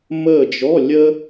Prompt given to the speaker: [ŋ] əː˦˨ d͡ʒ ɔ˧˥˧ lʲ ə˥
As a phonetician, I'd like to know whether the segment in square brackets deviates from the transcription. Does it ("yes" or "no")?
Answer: yes